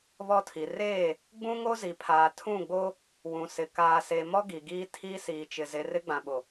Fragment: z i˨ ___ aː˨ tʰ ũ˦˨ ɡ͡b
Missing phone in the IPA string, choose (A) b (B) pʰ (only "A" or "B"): B